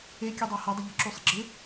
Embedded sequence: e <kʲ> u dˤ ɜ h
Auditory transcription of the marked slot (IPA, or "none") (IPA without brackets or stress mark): kʲ